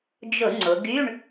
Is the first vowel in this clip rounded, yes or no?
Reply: yes